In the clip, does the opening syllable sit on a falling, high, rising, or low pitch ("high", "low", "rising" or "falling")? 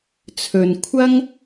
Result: low